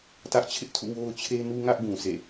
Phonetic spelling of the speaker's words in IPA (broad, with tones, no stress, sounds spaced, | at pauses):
t ä˦ ʔ t͡ɕʰ ɪ˦ ʔ tʰ ṵ˦˨ w o˦ ʊ̯ t͡ɕʰ e˦ n u˦ ŋ ä˦ ʔ ɡ ũ˨ sʰ ḛ˦˨